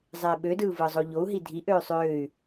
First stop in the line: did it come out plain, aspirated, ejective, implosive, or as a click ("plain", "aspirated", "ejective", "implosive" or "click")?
implosive